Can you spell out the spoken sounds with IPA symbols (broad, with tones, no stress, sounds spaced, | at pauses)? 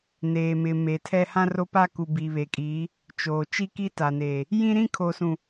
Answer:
n eː˨ m ɪ˨ m e˨ tʰ ɛ˦ h ã˦ r o˦ p a˦ k u˨ b i˨ β e˨ kʼ iː˨˦ | t͡ʃ oː˨ t͡ʃ i˦ k i˦ t a˨ n eː˨ | j ĩ˦ ɾ ĩ˦ kʰ o˨ s ũ˨